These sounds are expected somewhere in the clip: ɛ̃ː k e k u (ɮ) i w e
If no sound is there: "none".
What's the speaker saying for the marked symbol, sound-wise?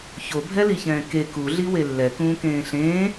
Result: ɮ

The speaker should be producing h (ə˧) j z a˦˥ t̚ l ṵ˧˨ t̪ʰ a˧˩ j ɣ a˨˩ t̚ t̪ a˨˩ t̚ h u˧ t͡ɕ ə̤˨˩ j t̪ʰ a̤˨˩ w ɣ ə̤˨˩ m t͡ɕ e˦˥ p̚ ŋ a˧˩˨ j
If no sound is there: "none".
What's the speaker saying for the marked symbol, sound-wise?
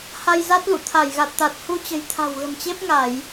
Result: a˧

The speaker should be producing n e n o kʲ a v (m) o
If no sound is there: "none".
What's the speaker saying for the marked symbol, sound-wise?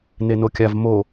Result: m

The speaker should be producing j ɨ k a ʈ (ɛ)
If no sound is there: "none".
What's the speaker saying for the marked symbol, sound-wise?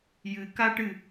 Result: ɨ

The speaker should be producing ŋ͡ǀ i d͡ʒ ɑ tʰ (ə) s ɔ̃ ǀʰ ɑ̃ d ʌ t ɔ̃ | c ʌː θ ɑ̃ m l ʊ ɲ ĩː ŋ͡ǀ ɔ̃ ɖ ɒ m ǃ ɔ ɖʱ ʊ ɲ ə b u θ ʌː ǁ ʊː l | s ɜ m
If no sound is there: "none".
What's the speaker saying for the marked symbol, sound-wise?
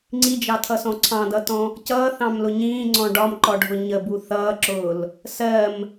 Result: ʌ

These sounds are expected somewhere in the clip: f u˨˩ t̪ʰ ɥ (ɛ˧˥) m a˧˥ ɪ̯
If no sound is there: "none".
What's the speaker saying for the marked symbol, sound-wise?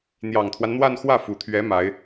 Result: ɛ˧˥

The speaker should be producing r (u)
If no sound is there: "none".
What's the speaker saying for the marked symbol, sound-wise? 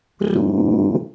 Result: ṵ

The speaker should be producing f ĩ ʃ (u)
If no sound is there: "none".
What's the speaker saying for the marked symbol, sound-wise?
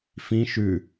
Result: ʉ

